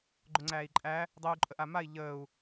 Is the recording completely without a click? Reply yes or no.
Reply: no